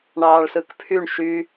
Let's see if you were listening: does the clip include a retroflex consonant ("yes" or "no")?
yes